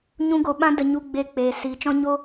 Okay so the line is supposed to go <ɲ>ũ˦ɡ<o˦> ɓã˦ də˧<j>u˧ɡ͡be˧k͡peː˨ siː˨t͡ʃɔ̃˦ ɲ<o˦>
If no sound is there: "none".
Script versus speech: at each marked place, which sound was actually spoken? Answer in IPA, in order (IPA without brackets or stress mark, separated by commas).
ɲ, o˧, ɲ, o˦